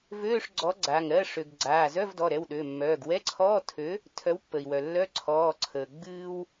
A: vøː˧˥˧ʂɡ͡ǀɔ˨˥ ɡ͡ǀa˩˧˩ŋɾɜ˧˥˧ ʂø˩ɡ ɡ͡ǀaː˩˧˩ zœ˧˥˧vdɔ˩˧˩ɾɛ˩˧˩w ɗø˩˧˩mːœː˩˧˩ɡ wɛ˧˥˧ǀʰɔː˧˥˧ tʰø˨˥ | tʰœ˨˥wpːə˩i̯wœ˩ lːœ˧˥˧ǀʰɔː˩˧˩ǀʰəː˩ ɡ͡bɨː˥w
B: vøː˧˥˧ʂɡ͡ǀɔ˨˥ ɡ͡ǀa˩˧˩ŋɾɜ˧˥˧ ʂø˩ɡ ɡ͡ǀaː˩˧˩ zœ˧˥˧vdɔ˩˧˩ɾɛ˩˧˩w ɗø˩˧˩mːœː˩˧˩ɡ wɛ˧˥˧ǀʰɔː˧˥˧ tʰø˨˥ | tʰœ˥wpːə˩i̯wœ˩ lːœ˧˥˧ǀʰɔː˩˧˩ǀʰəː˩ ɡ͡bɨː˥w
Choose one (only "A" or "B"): A